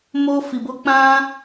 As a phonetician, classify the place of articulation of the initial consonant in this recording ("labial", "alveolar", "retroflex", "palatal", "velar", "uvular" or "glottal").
labial